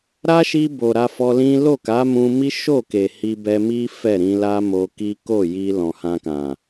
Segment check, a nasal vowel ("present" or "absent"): present